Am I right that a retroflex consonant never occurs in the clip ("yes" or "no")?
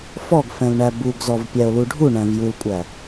no